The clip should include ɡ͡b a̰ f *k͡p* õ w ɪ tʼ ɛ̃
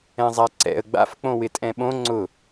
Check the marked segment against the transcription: correct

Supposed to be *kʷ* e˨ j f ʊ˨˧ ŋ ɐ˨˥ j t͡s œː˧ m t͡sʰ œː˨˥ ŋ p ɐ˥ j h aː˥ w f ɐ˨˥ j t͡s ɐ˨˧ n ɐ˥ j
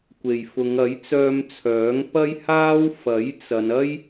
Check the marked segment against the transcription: correct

